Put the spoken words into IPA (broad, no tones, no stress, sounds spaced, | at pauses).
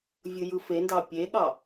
vʲ ɯ j ɯ f e n d ɑ pʲ e ɠ ɑ